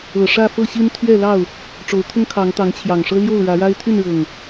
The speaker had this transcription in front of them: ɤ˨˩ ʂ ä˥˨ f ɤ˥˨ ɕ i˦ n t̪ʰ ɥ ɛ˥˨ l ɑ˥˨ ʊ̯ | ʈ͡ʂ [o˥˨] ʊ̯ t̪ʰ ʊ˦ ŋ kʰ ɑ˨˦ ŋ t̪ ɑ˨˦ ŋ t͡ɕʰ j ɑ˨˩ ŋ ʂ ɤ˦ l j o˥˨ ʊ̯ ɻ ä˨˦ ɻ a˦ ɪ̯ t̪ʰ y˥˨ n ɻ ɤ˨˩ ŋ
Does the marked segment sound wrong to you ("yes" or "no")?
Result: yes